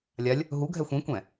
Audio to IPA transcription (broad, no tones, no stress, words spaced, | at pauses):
lʲalʲ | ɦuɡʱɛ xʷĩkʷɛ̃